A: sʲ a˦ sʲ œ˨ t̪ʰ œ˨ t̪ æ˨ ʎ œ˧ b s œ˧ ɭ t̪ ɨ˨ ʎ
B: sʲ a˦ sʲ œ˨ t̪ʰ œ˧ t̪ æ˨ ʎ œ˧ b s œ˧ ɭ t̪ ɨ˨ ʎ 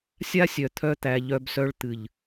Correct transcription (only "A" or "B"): B